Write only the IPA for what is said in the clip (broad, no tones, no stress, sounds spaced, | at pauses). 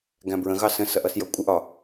ɡ æ̃ b ɹ ə̃ ɣ ɑ s ə̃ s ʌ ʔ ʌ s j ʌ kʷʼ ɪ ʔ ɒ